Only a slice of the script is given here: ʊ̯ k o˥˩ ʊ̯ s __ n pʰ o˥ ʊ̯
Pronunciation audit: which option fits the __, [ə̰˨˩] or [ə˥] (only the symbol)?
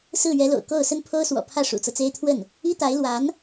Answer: ə˥